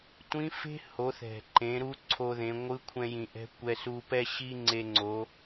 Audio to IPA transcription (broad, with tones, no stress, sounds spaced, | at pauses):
tʷ ĩ˧˥ f e̤˥ h o˩˧ θ ɛ̤˩ ǃ ẽ˩˧ ɾ u˧ ǀʰ o˧ ð ẽ˩˧ ŋʷ ɯ˧˥ kʷʰ ɛ̃˧ j ĩ˩ ʔ ɛ̤˧˥ kʷ ɛ˧ s u˧ p ɛ˥ ɕ i˥ ŋ͡ǀ e˧ ŋ͡ǀ o˩˧